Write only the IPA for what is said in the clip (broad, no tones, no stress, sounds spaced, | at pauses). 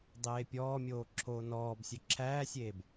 dˤ eː pʲ ɔː mʲ oː ǁʰ oː n ɔː b sʲ ɵ ǁʰ æː sʲ eː b